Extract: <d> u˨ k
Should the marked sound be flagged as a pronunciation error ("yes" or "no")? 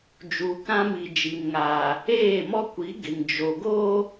yes